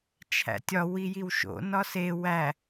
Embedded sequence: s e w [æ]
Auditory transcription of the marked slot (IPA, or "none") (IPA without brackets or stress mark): æ